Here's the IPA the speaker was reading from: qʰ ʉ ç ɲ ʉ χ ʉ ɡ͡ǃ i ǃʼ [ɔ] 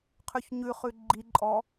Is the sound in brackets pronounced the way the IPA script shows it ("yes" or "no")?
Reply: yes